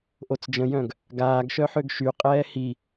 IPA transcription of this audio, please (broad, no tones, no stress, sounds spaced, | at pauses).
ʔ o t͡s d͡ʒ ə̃ j œ̃ ɡ | ɡ aː ɡ ʃ œ ħ ø ɡ ʃ y qʼ ɛː h i